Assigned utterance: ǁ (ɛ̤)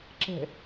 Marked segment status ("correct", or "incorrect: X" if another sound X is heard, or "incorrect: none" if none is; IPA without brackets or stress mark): correct